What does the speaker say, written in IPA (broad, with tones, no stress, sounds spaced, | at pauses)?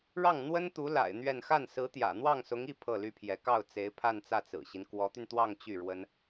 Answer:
ɻ ɑ˥˩ ŋ n̪ w ə˥ n t̪ u˧˥ l a̰˨˩ ɪ̯ n̪ ɥ ɛ˥˧ n x a˥˩ n s ɹ̩˧˥ t̪ j ä̰˨˩ n̪ w ɑ˥˩ ŋ s ʊ˧˥ ŋ i˥˧ pʰ ɤ˥˩ l y˥ pʰ j ɛ˧˥ k ɑ˥˩ ʊ̯ t͡s e˧˥ ɪ̯ pʰ a˥˧ n t͡s ä˥˩ t͡s ɹ̩˨˩ ɕ i˦ n k w ɔ˧˥ t̪ y˧ n t̪ w ɑ˥˧ ŋ t͡ɕ y˥˩ ɻ w ə˥ n